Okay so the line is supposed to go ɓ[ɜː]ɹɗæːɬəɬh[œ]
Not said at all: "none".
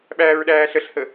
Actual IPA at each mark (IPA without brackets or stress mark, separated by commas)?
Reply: æː, ə